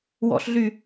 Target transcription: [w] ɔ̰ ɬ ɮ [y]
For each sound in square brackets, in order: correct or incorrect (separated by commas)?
correct, correct